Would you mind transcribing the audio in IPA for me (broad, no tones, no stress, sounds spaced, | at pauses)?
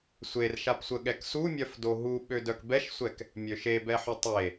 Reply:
sʷ e r ʃ a p sʷ ə ɠ ɛ k s u mʲ œ f d o ɦ u ɓ ø d œ k b ɛ ʃ sʷ ɛ k | mʲ ø ʃ e b ɛ ħ y tˤ e